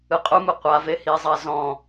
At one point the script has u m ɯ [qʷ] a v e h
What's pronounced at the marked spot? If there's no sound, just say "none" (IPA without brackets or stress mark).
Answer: qʷ